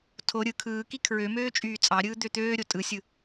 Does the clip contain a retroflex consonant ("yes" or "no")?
no